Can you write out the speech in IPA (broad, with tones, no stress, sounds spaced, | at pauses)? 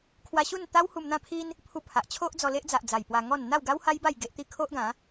kʰ w a˧ ɕ u˥˧ n t̪ a˦ w h u˧ m n̪ ã˥˧ pʰ i˦ n | pʰ u˧ pʰ a˨ ʔ t͡ɕʰ o˦ ʔ d͡z ɔ˧ l e˦ ʔ d͡z a˨ ʔ d͡z a˨˩ j p w a˧ ŋ ɔ˥˧ n n̪ a˥˧ w ɡ a˦ w h a˦ j b a˥˧ j ɡ e˦ ʔ t̪ i˥˧ kʰ o˦ ʔ ɡ ã˨˦